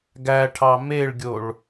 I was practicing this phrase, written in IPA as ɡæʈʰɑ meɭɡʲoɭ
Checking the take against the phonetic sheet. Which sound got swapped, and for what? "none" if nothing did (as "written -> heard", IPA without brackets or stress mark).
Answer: none